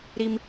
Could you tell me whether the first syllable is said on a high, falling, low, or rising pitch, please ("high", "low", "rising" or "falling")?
high